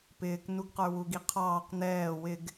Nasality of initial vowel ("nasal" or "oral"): oral